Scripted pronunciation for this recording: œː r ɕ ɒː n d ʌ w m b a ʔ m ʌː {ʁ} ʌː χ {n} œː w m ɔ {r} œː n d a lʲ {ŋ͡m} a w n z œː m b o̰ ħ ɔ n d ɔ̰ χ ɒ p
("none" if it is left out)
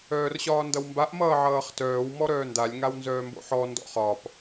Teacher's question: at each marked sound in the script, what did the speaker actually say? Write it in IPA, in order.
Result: ʕ, t, ɾ, ŋ

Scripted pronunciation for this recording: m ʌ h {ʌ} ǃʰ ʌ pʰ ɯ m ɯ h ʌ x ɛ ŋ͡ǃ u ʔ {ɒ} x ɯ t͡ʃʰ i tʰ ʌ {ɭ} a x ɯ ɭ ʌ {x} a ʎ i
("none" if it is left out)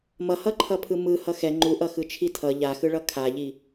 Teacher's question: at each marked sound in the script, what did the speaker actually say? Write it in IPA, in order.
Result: ʌ, ʌ, ʎ, kʰ

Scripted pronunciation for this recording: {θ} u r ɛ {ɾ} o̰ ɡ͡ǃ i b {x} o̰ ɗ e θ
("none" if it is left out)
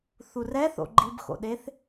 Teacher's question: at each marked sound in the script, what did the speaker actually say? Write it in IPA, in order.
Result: θ, θ, x

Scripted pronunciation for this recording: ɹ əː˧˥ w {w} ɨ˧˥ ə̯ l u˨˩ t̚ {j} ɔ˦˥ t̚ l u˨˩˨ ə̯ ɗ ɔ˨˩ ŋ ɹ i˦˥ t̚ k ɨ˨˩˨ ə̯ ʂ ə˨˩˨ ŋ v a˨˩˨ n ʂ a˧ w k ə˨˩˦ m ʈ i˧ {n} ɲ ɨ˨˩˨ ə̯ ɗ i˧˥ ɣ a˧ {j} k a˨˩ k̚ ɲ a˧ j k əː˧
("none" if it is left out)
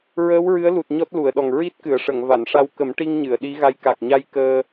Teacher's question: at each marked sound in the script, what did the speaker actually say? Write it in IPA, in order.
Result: ɹ, ɲ, ŋ, j

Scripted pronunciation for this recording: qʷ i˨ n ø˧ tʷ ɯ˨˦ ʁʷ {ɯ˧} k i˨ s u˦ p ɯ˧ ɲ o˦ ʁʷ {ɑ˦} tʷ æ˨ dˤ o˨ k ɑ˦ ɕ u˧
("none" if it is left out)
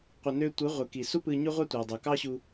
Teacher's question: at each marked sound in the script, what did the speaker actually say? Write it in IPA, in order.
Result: ɯ˨, ɑ˦

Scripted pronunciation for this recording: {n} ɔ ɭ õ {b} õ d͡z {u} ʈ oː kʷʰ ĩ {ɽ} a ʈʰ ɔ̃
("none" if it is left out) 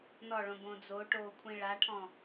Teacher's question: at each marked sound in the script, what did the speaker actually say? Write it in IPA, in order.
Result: n, b, o, ɭ

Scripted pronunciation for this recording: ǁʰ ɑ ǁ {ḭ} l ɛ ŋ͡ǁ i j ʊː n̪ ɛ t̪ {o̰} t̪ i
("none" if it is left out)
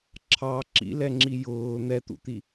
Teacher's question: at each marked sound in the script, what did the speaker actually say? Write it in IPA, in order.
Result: ḭ, ṵ

